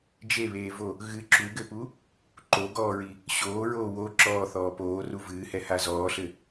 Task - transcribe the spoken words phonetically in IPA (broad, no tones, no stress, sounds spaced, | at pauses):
d͡ʒ e β eː v o | ɣ ɨ ǁ u ɡ ɘ p u | ǃ o ɡ ɔː ɹ i | ɕ oː ɹ oː w o ǁ ɔː θ ɔː p oː r u v ɨː h ɛ h a z ɔː ɬ ɘ